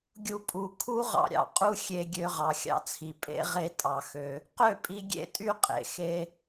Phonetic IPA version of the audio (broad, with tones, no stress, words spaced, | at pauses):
ɡʲu˧ pʼu˨ kʰu˦ʁɑ̰˧ɾʲɑ̰˨ qʼu˦xʲe˧ɡʲø˧ ʁɑ˨xʲɑ̰˧t͡sʰi˨ pʼḛ˦ ʁe˦ tʼɑ˨xø˧ | qø˦˨pʼi˧ ɡʲḛ˦tʼy˦qʼḛ˨ xe˧